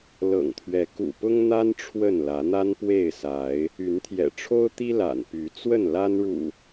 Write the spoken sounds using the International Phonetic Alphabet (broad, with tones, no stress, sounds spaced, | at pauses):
l ɤ̰˨˩ ŋ t̪ʰ ɥ ɛ˨˦ k ṵ˨˩ p ʊ˦ ŋ n̪ a˦ n ʈ͡ʂʰ w ə˥˨ n l ä˨˦ n̪ a˦ n p w e˥˨ ɪ̯ s a˨˦ ɪ̯ | y˨˦ n t̪ʰ j ɛ̰˨˩ ʈ͡ʂʰ o˦ ʊ̯ t̪ i˦ l a̰˨˩ n p y˨˦ t͡s w ə˥˨ n l a˦ n ɻ ṵ˨˩